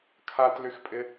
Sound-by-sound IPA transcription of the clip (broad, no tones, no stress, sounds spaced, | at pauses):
kʰ a t l y x pʼ ɪ